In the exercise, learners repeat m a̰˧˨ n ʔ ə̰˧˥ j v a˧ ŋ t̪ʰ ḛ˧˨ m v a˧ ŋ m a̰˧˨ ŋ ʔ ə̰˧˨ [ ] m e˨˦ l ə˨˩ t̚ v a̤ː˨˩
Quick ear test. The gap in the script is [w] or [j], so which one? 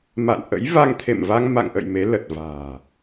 j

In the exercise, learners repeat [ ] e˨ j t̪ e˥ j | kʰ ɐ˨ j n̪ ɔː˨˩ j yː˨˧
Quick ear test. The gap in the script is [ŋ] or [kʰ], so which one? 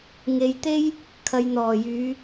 ŋ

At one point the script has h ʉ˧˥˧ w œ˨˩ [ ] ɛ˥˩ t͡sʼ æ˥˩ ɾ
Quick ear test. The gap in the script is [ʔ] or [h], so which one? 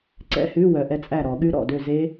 ʔ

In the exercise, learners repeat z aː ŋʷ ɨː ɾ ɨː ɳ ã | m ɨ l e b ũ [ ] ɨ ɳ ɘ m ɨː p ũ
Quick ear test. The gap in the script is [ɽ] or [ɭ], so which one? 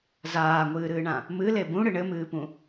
ɽ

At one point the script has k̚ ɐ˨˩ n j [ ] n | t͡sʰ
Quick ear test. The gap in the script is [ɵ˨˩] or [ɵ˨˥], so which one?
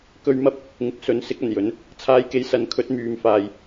ɵ˨˥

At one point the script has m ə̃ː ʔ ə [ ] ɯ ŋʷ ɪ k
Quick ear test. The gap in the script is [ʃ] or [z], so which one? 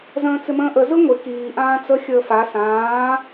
z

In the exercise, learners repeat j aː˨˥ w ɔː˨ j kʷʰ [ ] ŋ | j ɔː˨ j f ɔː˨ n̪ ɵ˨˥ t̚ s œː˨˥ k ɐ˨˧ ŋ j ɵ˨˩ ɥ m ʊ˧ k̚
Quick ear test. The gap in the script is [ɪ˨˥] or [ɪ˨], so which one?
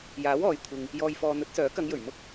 ɪ˨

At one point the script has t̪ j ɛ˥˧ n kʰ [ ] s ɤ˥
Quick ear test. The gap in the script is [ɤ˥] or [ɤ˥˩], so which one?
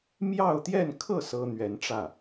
ɤ˥˩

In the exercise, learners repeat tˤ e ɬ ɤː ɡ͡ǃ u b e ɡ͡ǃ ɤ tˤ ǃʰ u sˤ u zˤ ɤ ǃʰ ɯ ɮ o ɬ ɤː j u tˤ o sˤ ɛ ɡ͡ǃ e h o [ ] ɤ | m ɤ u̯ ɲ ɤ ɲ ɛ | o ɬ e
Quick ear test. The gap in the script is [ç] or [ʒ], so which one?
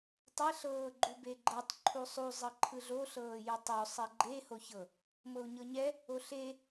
ç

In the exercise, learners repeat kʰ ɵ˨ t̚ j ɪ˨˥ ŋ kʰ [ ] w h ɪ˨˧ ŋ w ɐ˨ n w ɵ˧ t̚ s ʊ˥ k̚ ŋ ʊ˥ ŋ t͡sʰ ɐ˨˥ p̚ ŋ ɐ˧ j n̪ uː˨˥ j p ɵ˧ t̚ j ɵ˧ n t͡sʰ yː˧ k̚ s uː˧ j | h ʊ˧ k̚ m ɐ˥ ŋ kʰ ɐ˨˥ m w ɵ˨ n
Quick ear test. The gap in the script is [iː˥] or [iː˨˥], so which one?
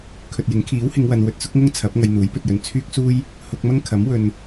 iː˨˥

